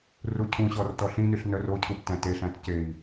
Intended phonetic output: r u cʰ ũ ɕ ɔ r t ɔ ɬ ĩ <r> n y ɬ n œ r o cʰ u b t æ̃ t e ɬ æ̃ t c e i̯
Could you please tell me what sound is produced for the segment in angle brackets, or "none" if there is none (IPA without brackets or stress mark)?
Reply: none